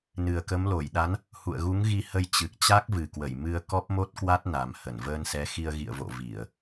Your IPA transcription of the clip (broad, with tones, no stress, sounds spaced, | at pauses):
n ɨ˨˩ ə̯ k ə˨˦ m l o˧˩ j ɗ a˨˦ n | h ṵ˧˨ ə̯ ɣ u˨˦ ŋ ɣ i˧ h ə˧ j t͡ɕ ɨ˨˩ k̚ t͡ɕ a˦˥ k̚ v ɨ˨˩ k w ə˧˩ j m ɨ˧ ə̯ k ɔ˦˥ p̚ m o˦˥ t̚ k w a˦˥ t̚ n a˨˩ m h ə˧˩ n v əː˧ n s ɛ˨˦ x i˧ ə̯ ɣ ḭ˧˨ ə̯ v o̰˧˨ v i˧˩˨ ə̯